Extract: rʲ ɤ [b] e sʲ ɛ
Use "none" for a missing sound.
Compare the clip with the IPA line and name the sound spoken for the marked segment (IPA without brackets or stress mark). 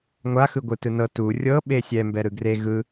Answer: ɓ